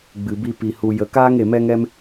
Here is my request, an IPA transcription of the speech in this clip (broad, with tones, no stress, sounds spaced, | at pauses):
ɡ͡b ɨ˨ b i˧ p i˨ h u˨ j ə˨ k aː˦ ŋ e˨ m ɛ˦ ŋ ɛ˦ m